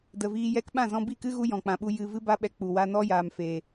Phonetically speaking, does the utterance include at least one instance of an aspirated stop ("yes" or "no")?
no